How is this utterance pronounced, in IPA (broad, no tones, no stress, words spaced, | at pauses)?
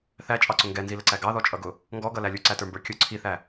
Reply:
θæt͡ʃʼɑǀʊ ŋɡɛnziləǀæ ɡɑðɔt͡ʃʼʌɡʊ | ŋɡɔɡʌlæ lʲuǀætə˞mbə˞ kʲʊ ǀʰiθæ